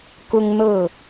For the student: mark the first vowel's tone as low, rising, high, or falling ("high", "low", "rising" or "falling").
high